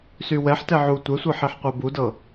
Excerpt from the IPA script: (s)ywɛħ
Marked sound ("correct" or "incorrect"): correct